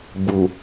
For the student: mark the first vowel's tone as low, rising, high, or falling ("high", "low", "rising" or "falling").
low